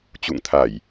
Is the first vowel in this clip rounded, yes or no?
yes